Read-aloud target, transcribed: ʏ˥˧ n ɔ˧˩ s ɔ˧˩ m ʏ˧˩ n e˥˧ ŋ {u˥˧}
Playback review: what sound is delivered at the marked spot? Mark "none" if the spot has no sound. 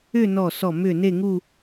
u˥˧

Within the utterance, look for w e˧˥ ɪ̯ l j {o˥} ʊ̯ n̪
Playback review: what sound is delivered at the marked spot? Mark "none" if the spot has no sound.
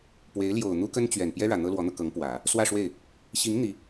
o˨˩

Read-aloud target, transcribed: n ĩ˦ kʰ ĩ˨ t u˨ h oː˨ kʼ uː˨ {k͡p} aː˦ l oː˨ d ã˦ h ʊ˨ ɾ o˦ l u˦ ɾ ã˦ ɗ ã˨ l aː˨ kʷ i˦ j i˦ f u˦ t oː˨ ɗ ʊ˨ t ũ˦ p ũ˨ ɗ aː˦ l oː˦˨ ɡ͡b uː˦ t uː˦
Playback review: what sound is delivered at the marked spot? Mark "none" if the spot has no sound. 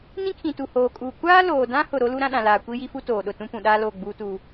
kʷ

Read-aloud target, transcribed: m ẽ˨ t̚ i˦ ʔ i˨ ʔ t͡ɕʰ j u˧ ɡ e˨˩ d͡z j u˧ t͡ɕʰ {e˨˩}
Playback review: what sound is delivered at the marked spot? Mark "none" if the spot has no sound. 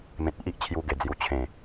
ẽ˨˩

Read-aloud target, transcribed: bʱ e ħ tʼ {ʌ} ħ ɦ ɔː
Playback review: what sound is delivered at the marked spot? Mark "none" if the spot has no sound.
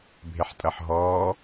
ʌ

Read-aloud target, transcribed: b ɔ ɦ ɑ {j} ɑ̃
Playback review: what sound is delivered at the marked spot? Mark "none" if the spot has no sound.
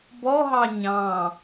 ɲ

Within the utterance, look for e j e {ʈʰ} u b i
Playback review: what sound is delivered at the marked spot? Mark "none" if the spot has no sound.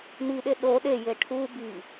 ʈʰ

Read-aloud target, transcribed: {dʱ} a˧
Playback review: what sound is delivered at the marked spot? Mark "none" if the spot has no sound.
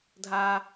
dʱ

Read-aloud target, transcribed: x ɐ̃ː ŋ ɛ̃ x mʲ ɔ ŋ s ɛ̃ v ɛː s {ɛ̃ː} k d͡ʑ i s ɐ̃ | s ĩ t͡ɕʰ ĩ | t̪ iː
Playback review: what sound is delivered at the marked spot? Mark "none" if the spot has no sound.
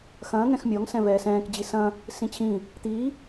ɛ̃ː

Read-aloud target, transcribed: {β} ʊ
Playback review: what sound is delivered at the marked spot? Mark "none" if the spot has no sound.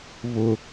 β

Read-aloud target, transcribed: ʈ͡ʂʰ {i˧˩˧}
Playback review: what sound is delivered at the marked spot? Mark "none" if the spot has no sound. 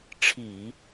i˧˩˧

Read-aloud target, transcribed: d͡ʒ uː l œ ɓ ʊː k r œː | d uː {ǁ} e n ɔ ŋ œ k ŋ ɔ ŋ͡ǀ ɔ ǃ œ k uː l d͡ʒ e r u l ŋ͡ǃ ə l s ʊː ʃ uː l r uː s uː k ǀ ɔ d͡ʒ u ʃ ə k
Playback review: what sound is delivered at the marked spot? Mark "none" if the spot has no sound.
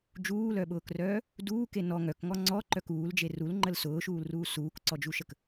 k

